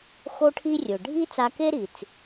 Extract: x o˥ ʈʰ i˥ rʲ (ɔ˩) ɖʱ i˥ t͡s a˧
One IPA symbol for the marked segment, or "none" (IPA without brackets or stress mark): ʊ˩